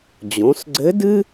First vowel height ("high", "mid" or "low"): mid